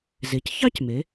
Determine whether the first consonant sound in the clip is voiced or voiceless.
voiced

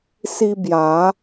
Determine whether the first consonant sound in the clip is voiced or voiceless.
voiceless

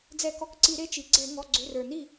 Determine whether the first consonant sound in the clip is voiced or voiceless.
voiced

